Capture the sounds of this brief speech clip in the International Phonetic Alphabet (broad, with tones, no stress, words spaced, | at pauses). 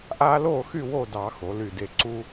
ʔaː˦loː˥˨xy˥˨ wo˥˨dɑ˧˩˧ xo˩˧ly˧˩de˧˩ ǀu˦